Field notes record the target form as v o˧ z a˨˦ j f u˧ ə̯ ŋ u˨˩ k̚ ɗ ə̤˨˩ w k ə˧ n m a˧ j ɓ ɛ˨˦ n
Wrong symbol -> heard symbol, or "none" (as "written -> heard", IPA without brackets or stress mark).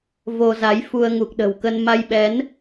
none